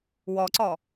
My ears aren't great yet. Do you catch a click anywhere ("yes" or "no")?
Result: yes